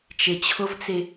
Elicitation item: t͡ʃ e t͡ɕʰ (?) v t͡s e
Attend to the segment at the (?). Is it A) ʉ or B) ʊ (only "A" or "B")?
B